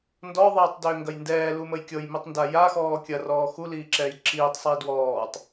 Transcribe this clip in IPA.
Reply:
ndɔðˤiːtˤdʏːŋɡɐj ndɛːluməj kʲɤjmitˤnda jaxɔː kʲɐrɔː xuliːǁɛːj ǁiːtˤsˤiː dwɔːtˤ

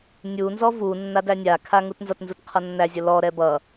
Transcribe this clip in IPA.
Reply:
nʲunzɔ vu nːadænʲakʰa ŋutnzʌtnzut qʰʌnːæzʲʌ lɔɾɛ bʌ

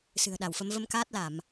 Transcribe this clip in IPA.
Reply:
sɨ̤˨˩ə̯ɗa˧˩wfə˨˦m və˧mkaː˦˥t̚la˧˩˨m

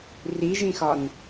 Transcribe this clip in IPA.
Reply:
riʒĩxɒn

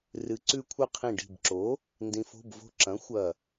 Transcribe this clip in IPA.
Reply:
rɨ˩˧ǀʉ˧kʷʰɨ˧ qʰĩ˧˩ɖi̤˧˩bǁo˩˥ | ndĩ˩˧fo̤˩˧˩bvo̤˧˩ǁɐ̃˩˥ xʷɐ˧˩

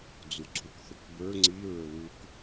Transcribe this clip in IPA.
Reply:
d͡zuǀʰukθʊkbə˞ ŋ͡ǀiɹə˞ wuk

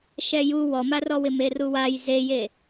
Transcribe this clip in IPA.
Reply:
ʃɛju wɔmarɔwɪ meruwaj zeje

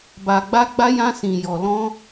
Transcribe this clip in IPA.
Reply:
ba˧ɡ͡ba˦ɡ͡ba˦jã˦ sĩ˧jɔ˧lɔ̃˦

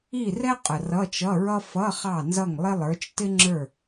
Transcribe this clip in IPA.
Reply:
i˥˨rɛ˥ qʼə˨˩rʌ˧˥˧t͡ʃʌ˧˥˧ɹʌ˥ fʌ˧˥˧ χɑ˥˨nzʌ˥˨ŋlˠɪ˥ lˠə˞˨˦t͡ʃtɪ˥ŋ͡ǁə˞˥˨

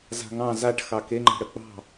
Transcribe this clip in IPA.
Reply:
za̤ŋɑ̃ zaʈ xɑkeŋ͡ǃa̤ ɽək͡pɑ̤

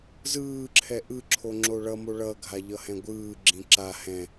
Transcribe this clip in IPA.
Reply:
zɯːǁʰɛ ʔɯǁʰo ŋ͡ǁoɭʌmo ɭʌɡʱa ʎʌhɛ̃ɡʷɯːɡ͡ǁĩ ǁa hɛ̃

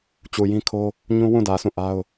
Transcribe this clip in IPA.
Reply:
t͡ɕu˨jĩ˦kʰo˦ | ɲũ˦wũ˦˨dä˨sũ˦˨ ʔa˦ʊ̯

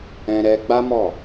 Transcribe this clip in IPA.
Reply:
ɛ̃˦ɾɛ˦ ɡ͡ba˦mɔ˦˨

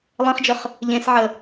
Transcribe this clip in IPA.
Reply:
lˠẽχd͡ʒəχ | ʎẽsʕə

